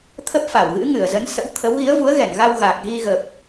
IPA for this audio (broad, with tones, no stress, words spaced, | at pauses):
t̪ʰə˦˥p̚fa˧˩wɣɨ̰˧˥ ŋɨ˧˩ə̯zə˨˦n sə̰˧˥wt̪ʰə˨˦w ɣi˨˦ə̯vu˨˦ə̯ɣɛ˧˩nɣa˧w ɣa˨˩k̚ ɣi˧ɣə˨˩p̚